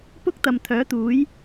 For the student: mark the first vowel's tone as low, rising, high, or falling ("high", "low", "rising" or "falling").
high